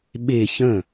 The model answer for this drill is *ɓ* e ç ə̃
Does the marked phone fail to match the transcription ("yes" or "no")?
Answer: no